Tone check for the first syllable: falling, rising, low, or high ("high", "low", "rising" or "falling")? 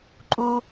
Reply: high